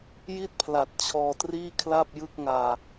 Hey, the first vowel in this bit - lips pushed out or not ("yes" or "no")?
no